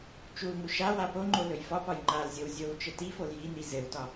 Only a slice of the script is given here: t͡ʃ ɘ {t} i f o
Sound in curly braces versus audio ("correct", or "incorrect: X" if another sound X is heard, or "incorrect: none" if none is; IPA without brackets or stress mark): correct